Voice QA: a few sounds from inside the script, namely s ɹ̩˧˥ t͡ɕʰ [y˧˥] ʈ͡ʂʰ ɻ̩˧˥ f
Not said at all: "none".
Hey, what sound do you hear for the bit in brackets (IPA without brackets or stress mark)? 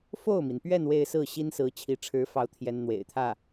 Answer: i˧˥